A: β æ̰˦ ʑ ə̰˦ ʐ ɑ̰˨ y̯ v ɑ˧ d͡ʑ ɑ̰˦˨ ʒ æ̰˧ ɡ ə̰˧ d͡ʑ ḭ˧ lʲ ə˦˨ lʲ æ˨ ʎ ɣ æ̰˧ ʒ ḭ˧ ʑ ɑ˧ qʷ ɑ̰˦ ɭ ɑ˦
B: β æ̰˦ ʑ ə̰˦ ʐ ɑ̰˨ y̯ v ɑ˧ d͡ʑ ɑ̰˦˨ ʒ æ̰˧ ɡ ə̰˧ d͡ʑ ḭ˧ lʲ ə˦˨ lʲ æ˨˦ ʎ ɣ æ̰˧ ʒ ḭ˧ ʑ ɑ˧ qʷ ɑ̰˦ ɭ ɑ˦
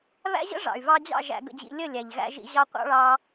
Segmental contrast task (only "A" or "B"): A